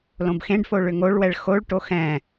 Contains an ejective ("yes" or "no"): no